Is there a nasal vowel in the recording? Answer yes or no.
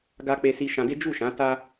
yes